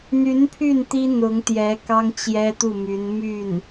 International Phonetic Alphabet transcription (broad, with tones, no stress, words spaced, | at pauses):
n̪y˧˥n pʰy˥˩n t̪i˥ n̪ʊ˧˥ŋt̪jɛ˧˥ kɑ˥ŋt͡ɕjɛ˥t̪u˥˩my˧˥n my˥˩n